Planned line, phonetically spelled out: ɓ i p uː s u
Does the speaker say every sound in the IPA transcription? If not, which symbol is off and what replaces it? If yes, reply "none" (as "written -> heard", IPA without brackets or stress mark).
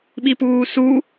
none